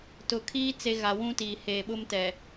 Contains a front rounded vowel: no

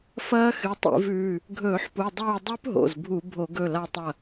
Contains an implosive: no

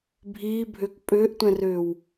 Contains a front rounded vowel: yes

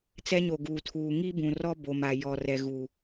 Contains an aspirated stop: yes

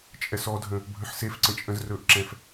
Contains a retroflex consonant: no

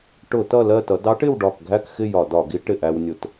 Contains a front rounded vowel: no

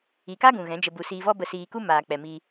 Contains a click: no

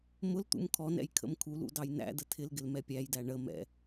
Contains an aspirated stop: yes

